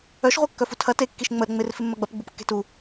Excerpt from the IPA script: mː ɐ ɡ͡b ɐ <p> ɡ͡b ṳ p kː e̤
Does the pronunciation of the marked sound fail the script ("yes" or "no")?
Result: no